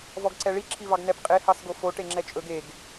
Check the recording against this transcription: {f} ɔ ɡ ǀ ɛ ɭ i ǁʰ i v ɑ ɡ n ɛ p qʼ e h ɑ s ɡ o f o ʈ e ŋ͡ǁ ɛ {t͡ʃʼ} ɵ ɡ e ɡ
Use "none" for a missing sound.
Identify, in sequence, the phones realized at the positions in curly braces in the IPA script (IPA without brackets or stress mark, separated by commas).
v, t͡ʃʼ